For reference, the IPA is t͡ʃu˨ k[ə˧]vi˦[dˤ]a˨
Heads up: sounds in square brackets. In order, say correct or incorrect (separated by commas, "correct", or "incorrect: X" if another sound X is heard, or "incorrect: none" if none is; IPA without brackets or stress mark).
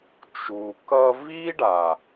incorrect: ʌ˧, incorrect: ɖ